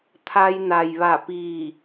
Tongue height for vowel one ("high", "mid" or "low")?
low